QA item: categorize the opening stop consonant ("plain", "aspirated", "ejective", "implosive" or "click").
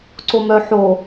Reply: click